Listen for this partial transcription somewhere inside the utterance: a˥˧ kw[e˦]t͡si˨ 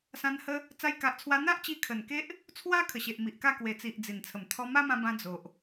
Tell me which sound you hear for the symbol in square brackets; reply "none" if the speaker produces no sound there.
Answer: e˨˩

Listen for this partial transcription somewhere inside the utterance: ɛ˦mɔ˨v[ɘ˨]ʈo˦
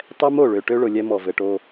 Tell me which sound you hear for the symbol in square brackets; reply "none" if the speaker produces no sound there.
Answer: ɘ˨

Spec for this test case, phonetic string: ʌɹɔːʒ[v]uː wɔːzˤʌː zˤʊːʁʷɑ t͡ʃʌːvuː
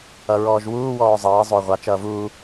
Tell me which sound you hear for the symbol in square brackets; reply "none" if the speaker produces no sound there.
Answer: w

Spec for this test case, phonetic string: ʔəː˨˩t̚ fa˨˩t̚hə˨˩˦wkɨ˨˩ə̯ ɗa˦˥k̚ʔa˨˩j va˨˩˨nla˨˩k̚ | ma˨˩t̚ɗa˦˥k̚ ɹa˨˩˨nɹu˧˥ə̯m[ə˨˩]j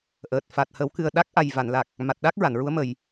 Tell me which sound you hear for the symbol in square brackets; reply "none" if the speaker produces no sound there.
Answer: ə˨˩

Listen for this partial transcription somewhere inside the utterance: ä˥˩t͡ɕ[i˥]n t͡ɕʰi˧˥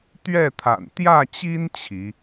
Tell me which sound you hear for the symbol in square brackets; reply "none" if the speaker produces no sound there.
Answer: i˥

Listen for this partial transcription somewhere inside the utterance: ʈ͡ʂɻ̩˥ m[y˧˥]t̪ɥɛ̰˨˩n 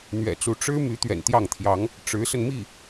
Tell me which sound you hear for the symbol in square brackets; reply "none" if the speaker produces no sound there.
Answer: y˧˥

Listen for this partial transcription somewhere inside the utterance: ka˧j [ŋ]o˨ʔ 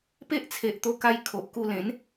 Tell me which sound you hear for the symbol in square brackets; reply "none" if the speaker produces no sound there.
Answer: kʰ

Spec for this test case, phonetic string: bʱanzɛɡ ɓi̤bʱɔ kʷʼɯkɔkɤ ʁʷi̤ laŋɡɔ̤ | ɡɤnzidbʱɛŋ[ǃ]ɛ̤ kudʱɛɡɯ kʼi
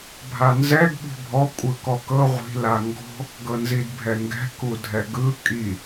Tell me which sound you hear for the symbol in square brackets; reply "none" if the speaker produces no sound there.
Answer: ɡ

